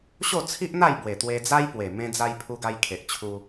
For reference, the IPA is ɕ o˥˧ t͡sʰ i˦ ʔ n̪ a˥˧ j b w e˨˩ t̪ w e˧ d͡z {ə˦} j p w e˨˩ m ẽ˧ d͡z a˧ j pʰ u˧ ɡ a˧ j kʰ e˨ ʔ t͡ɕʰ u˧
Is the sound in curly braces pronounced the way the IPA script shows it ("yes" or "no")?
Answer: no